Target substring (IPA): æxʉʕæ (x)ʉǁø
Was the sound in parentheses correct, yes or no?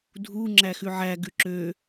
no